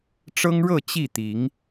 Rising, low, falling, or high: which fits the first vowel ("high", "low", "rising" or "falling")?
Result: high